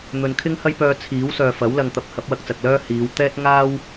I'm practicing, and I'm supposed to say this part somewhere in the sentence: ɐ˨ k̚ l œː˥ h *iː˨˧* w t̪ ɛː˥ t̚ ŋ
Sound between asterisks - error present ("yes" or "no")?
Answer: no